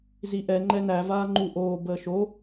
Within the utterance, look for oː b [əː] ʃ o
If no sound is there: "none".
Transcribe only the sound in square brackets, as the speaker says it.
əː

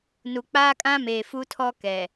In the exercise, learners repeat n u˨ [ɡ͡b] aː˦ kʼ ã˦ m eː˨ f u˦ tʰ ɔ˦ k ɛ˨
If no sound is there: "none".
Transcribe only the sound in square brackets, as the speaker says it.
k͡p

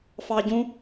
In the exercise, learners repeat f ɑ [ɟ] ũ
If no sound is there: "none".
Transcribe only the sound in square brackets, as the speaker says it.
ɟ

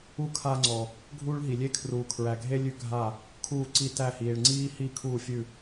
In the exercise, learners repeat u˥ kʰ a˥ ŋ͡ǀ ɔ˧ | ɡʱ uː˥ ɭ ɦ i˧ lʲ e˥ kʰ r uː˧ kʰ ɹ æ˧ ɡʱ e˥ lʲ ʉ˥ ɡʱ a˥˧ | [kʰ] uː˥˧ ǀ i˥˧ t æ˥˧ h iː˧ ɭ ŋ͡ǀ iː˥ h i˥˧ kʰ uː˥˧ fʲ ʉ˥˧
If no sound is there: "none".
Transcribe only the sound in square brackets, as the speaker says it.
kʰ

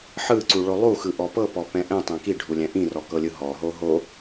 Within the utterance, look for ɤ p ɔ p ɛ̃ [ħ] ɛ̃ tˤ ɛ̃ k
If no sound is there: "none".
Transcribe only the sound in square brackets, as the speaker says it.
ʔ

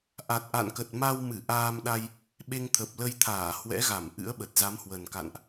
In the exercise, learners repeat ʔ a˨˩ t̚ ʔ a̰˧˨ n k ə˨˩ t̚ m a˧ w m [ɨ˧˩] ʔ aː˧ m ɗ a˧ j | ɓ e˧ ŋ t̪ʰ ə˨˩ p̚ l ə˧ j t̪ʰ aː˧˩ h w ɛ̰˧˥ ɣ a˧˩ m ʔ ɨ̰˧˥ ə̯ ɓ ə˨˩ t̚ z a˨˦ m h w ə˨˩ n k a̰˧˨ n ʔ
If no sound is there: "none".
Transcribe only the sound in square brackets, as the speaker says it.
ɨ˧˩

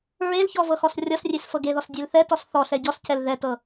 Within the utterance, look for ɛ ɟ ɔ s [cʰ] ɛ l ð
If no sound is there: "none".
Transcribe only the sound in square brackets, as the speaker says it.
cʰ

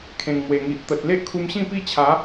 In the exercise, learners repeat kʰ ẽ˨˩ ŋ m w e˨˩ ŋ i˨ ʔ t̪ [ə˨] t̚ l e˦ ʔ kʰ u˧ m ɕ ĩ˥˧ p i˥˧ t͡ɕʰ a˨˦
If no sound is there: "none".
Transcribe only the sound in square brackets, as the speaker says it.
ə˨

